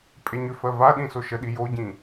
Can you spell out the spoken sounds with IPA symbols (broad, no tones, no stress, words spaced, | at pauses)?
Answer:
pʼeɲʏfɜ vaɗĩ soʃəɗi joɟĩ